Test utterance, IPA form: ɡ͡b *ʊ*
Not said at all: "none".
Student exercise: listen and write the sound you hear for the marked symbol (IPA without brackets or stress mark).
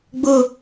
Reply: ʊ